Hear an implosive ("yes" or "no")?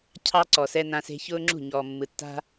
no